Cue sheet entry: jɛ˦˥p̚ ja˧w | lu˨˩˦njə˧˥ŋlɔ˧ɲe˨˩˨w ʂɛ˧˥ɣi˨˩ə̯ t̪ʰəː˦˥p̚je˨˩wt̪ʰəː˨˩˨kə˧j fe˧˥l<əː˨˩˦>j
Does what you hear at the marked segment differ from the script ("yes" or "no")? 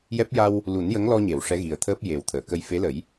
yes